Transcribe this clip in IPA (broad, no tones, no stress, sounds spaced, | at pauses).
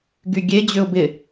ɡ y ɡʲ e d͡ʑ ʏ ʊ̯ b ɪ